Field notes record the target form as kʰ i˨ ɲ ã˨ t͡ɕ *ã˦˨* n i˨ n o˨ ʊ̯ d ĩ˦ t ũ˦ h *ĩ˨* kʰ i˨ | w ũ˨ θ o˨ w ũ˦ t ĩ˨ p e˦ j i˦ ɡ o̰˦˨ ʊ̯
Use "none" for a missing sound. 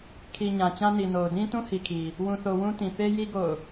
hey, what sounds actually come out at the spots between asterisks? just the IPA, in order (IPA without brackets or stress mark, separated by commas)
ã˦, i˨